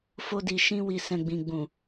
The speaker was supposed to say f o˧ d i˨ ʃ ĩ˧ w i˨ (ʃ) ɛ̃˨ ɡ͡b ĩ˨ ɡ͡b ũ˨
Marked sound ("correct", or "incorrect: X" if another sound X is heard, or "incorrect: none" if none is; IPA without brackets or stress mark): incorrect: s